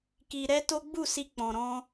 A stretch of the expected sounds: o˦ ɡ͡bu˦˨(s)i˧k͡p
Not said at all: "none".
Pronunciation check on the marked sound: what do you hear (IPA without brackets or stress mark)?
s